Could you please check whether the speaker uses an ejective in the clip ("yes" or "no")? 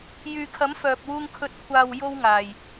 no